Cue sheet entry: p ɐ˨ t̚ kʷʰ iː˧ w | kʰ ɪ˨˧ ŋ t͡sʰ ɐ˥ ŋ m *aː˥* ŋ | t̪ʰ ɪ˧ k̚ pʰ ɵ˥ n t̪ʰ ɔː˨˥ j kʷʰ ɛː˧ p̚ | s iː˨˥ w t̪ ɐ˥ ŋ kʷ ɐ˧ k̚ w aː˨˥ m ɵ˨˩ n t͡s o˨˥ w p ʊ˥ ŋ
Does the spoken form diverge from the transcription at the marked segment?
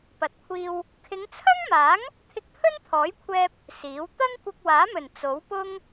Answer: yes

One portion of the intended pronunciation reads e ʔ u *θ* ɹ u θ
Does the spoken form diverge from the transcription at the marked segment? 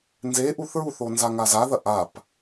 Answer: no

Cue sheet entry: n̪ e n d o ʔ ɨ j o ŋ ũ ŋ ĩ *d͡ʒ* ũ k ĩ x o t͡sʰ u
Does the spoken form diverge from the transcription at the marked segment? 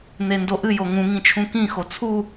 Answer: yes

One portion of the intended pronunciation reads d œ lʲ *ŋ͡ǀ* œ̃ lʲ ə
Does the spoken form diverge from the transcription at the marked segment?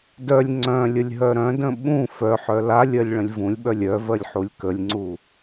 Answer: no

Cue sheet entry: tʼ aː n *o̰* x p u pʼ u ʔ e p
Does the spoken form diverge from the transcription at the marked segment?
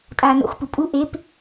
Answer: no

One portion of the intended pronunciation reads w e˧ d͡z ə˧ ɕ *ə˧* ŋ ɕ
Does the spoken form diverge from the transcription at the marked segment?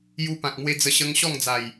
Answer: no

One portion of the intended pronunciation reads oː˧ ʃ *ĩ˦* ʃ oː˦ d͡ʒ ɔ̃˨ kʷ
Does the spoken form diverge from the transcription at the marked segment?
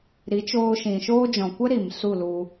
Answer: yes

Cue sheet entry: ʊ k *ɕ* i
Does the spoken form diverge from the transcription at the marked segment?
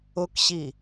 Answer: no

